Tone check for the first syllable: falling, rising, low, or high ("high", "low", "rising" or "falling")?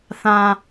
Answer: low